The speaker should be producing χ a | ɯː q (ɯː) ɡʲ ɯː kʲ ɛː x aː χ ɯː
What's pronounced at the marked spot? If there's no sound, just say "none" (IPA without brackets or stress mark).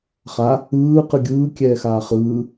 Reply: ɯ